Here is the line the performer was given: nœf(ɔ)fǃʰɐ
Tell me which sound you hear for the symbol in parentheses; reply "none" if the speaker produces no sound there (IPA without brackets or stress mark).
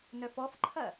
ɔ